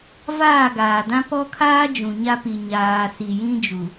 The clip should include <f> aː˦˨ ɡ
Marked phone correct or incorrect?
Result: incorrect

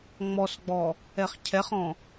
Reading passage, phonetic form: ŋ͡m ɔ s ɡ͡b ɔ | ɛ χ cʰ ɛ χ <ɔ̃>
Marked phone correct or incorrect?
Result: correct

